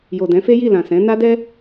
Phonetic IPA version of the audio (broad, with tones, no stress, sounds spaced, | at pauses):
j o˨ d ɛ̃˨˦ f e˦ j i˦˨ l ã˨ s ɛ̃˨˦ n a˦ d ɛ˦